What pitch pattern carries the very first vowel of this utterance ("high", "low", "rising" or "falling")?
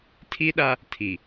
high